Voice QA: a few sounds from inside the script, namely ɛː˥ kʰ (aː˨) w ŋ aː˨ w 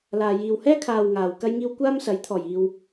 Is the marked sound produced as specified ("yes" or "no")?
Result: yes